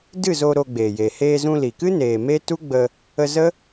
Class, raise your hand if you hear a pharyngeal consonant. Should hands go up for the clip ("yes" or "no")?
no